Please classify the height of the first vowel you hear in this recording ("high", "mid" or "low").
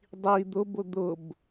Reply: high